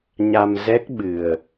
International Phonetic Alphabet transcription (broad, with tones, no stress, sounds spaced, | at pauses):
ɲ a˧ m z ɛ˦˥ k̚ ɓ ɨ˨˩ ə̯